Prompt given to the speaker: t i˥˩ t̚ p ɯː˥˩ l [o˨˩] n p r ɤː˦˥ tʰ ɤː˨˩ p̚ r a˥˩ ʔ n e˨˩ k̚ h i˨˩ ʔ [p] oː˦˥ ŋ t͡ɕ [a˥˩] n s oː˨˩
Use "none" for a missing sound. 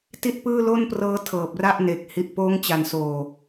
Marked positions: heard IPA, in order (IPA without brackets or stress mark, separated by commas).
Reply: o˥˩, p, a˨˩